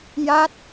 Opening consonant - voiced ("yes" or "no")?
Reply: yes